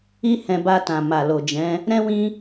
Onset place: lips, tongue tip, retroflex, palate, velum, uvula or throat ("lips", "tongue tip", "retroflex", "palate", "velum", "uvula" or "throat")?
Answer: throat